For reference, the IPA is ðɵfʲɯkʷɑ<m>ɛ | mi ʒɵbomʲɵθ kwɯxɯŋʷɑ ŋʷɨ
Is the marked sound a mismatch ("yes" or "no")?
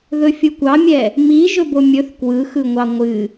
yes